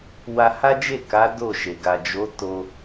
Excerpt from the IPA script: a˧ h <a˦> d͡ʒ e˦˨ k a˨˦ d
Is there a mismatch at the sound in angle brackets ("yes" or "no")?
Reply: no